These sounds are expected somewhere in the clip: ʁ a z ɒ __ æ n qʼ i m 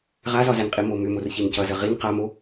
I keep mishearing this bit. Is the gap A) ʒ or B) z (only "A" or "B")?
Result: B